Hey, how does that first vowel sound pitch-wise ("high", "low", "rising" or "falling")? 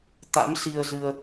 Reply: rising